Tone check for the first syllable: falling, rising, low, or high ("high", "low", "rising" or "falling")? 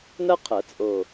high